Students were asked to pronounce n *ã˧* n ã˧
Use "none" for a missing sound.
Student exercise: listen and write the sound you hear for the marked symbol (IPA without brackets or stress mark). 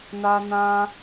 a˧